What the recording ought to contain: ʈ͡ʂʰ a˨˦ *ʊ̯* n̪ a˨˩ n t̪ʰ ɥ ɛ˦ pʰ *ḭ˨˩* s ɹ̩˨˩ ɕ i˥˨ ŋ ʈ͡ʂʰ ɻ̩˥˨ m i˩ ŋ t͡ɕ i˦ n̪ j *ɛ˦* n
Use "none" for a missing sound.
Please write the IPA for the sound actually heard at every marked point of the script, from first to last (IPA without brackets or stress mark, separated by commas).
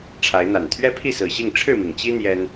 ɪ̯, i˥˨, ɛ˦